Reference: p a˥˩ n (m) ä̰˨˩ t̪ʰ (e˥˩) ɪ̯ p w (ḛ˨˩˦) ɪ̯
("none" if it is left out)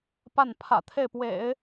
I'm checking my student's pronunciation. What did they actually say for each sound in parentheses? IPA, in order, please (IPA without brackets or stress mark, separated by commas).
pʰ, e˥˩, ḛ˨˩˦